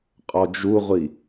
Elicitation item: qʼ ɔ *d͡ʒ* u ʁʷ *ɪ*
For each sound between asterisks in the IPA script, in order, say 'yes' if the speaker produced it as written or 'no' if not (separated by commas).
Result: yes, no